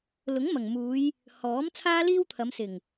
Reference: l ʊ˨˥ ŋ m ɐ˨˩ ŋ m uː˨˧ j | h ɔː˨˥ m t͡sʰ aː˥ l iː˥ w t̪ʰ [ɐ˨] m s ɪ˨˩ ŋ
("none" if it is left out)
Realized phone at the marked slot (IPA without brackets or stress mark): ɐ˨˧